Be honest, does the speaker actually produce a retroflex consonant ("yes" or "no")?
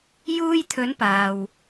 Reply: no